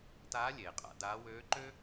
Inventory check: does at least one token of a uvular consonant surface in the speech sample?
yes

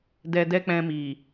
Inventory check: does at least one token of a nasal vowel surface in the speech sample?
yes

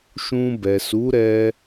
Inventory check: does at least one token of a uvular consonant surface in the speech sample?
no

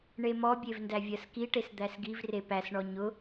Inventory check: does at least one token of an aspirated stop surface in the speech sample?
no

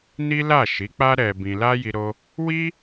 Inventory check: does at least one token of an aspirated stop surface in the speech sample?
no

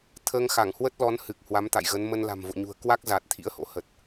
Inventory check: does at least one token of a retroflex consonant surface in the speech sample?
no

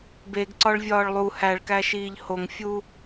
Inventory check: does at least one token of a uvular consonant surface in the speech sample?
no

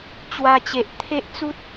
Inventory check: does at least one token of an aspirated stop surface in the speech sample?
yes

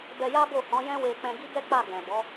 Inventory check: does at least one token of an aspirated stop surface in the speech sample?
no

